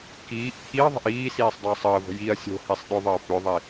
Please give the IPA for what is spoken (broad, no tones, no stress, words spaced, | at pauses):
kiːʔ t̪ʰiɐ̯ðˤə̤ʔ iːsiːsˤ dˤəːsˤəːvə̤ jiɐ̯ sʲo̤hisˤ ɗʏðˤəː pʏðˤi